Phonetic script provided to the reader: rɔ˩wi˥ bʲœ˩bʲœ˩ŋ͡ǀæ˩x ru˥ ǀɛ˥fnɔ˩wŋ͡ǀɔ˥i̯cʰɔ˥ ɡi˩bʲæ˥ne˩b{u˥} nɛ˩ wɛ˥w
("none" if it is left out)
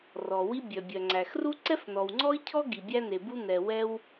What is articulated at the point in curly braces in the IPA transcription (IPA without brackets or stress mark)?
u˥